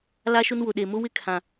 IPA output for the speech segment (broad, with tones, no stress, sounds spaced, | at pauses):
l a˦ ʃ ʊ˦ n w ʊ˨ ɗ e˨ m ʊ˦ w ɪ˦ kʰ ã˨